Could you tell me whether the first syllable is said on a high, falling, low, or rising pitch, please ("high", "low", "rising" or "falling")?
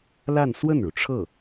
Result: falling